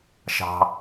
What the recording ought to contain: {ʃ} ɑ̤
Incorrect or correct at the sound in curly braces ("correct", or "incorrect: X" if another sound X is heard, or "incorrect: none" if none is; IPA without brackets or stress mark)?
correct